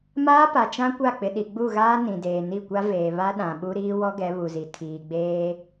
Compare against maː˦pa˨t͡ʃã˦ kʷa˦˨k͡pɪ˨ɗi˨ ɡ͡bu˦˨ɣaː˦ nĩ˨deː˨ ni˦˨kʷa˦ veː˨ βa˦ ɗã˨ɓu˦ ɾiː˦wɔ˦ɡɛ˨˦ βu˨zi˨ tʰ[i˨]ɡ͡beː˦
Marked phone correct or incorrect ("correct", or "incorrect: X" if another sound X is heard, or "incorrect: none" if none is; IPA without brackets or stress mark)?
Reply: incorrect: iː˨